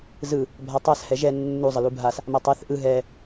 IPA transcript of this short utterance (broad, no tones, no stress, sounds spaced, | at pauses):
z ɯ | bʱ a tˤ a s h ɛ ʒ ɛ nː u zˤ ə l u bʱ a s | m a tˤ ɛ θ ʔ ɯ ɦ ɛ